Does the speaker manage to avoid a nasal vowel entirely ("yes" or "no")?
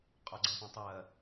no